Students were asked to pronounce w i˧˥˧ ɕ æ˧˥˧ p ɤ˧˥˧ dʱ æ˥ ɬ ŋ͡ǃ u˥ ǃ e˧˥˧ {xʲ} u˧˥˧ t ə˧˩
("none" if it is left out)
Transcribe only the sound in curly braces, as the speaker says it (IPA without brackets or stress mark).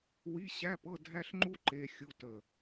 xʲ